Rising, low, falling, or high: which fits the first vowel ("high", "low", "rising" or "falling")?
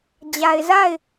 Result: low